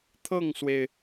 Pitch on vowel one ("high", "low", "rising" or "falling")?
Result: falling